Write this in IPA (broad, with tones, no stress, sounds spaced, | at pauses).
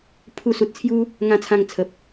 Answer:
pʰ u˧ s u˨ t̚ t͡sʰ j u˦ | ŋ ã˧ t͡sʰ ã˧ ŋ t͡sʰ ə˨ p̚